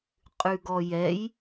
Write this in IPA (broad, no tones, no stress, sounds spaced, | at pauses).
qʼ ʉ ɡ ɔ j ɛ j